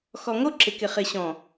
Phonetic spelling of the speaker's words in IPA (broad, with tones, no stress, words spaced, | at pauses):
xɔ˨ ŋo˦ǁɪ˨kɪ˨ χɪ˨ɕɔ̃˨